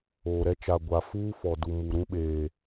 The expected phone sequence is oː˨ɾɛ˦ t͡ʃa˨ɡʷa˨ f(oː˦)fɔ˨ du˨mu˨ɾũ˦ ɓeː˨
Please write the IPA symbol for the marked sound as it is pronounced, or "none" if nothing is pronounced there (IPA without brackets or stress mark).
uː˦